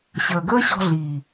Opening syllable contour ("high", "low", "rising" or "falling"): low